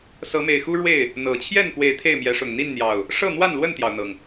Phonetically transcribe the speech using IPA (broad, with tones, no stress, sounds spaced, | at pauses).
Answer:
s ɤ˨˦ m e˨˩ ɪ̯ x u˦ ɻ w e˥˨ ɪ̯ | n̪ ɤ˨˩ t͡ɕʰ j ɛ˥˨ n k w e˨˦ ɪ̯ t̪ʰ e˥˨ ɪ̯ m j ɛ˨˦ ʂ ʊ˨˩ ŋ n̪ i˥˨ n n̪ j ɑ˨˩ ʊ̯ | ʂ ɤ˥˨ n̪ w a˥˨ n l w ə˥˨ n t̪ j ɑ˩ ʊ̯ n̪ ɤ˩ ŋ